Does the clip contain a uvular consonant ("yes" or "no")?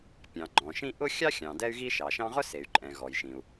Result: yes